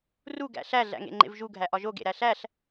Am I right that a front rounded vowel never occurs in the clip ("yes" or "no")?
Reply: yes